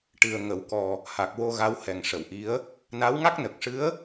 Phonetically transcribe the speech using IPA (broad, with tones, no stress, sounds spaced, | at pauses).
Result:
ʈ ɨ˨˩ ə̯ ŋ ə˨˩˨ w k ɔ˨˩ | h a˨˩ k̚ w o˧ ɣ a˧˥ w h ɛ˨˩ ŋ ʂ ə˨˩˨ w ʔ i˧˥ ə̯ | n a˧˥ w ŋ a˦˥ k̚ n ə˨˩ k̚ ʂ ɨ˧˥ ə̯